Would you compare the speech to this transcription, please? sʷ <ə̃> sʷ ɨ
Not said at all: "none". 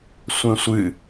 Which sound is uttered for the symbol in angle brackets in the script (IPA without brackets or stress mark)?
ə̃